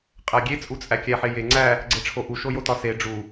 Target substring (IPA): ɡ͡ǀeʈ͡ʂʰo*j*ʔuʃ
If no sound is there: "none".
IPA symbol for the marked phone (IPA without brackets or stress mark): none